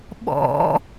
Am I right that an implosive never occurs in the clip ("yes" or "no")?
no